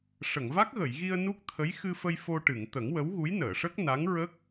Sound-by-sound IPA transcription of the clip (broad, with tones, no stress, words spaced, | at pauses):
ʂə˨˩˨ŋva˦˥k̚ɣə˨˩˨jɣi˧ə̯ nu˦˥k̚t̪ʰə˧˥j xɨ˧fə˧j fo˧ ʈɨ˨˩˨ŋt̪ə˨˩˦ŋ wə˧˥wɣu˧˥jnəː˨˩˨ʂə˦˥k̚ na˧˥ŋɹə˦˥k̚